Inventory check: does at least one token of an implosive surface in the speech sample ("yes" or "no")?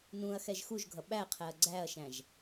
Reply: yes